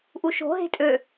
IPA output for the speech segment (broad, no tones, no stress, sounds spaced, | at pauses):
ʔ u ʃ o̤ ɦ e̤ tʼ ø